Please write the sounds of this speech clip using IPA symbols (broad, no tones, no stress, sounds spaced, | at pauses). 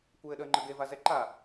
kʷ ɘː ɗ əː ŋ͡ǃ ə ɡ e v a z ɛ ǃ a